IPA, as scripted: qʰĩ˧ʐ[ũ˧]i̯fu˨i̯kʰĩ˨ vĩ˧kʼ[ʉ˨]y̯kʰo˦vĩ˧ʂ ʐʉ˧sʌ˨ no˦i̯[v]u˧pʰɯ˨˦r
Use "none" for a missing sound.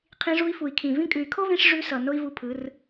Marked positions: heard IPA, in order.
u˧, ʉ˨, v

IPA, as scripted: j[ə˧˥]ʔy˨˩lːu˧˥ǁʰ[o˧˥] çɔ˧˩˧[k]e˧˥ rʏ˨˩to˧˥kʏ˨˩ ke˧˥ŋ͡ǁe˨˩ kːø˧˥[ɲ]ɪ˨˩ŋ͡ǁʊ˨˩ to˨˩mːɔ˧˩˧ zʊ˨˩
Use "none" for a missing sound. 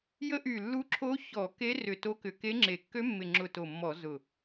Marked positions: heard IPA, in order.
ə˧˥, o˧˥, k, mː

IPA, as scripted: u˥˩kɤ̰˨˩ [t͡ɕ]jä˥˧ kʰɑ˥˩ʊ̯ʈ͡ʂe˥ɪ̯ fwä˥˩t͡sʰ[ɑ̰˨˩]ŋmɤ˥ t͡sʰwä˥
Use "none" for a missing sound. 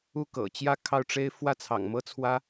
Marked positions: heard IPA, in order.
t͡ɕ, ɑ̰˨˩

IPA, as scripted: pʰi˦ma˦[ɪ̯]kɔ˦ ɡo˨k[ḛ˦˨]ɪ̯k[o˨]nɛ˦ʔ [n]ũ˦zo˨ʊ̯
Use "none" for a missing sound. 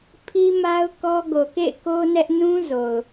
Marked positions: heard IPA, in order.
ʊ̯, ḛ˦˨, o˦, n

